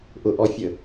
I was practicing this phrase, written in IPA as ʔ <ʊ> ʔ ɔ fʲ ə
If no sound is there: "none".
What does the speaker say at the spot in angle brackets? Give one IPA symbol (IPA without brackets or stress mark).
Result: ʊ